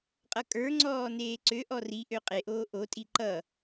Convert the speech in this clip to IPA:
qʼʌkʼə˞ŋ͡ǀɔː neːǀøʔɔ riʔø qʼeʔoː ʔotʼi ǃʌ

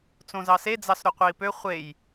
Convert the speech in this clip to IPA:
t͡sõzɑse d͡zɑsɾoqʷei̯pø χʷej

